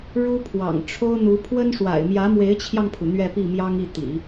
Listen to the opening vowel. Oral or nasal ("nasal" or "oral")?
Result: oral